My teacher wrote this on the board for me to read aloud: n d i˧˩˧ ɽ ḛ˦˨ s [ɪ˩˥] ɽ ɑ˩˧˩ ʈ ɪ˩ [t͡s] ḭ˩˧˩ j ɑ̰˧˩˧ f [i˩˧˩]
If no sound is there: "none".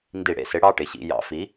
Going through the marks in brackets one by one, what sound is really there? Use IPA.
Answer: ɪ˩˥, ɕ, i˩˥

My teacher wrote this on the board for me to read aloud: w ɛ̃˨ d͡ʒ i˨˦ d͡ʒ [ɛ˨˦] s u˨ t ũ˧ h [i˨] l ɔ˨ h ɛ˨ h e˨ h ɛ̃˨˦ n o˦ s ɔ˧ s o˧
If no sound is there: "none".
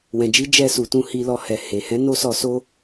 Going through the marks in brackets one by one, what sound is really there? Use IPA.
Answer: ɛ˧, i˨

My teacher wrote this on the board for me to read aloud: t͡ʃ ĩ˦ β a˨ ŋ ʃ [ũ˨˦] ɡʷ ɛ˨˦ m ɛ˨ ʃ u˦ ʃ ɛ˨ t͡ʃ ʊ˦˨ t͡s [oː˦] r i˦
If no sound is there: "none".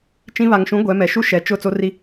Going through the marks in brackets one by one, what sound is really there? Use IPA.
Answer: ũ˨˦, o˦

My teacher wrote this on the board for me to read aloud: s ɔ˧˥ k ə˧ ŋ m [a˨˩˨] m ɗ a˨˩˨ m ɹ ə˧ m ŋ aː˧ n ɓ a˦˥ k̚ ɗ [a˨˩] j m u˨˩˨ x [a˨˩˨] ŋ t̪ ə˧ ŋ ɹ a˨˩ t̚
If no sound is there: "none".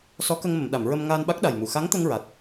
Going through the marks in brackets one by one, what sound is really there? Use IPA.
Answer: ə˨˩˨, a˨˩, a˧˥

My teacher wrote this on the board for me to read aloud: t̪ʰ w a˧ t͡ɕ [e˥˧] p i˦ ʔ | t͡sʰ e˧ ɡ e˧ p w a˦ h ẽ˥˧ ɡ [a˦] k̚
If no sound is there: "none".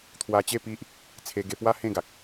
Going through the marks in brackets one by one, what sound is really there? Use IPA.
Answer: e˥˧, a˨

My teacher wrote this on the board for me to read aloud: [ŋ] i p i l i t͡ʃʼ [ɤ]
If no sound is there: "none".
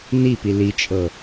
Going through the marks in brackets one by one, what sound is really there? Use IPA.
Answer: n, ɤ

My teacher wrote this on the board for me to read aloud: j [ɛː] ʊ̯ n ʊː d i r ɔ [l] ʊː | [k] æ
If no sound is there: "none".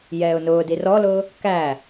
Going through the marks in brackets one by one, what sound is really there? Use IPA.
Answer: ɛː, l, k

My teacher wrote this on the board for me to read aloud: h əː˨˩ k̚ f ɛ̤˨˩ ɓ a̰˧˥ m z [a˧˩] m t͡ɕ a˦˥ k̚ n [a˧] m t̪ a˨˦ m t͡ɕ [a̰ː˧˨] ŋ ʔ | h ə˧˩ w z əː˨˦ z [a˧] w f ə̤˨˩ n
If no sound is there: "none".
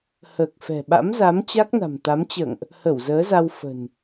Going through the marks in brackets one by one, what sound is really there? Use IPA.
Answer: a˨˦, a̤˨˩, ə̰ː˧˨, a˧

